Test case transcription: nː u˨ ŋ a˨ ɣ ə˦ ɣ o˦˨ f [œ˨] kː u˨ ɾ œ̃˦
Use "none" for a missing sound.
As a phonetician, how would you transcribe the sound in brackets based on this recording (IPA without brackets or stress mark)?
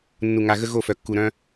œ˨